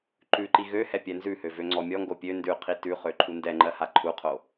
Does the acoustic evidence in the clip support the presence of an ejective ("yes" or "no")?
no